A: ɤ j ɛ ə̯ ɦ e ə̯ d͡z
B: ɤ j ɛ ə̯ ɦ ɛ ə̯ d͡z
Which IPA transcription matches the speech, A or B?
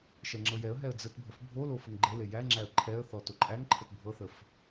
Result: B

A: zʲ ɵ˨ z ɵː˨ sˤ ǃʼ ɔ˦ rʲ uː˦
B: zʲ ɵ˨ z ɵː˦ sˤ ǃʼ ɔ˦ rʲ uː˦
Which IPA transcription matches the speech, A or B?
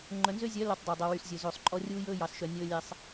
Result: A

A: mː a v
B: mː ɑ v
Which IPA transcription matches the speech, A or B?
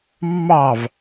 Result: B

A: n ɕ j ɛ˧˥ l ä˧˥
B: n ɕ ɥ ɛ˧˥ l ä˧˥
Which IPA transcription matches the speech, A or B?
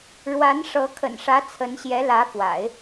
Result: A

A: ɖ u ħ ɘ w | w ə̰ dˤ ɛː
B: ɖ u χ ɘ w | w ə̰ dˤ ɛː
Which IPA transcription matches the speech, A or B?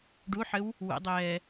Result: A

